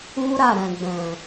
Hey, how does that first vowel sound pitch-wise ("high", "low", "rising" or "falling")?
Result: high